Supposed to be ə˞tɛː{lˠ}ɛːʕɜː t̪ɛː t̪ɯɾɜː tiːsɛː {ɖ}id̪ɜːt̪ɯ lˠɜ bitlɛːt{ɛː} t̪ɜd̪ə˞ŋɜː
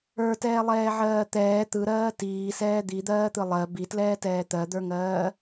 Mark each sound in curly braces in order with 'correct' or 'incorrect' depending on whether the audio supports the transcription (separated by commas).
correct, incorrect, correct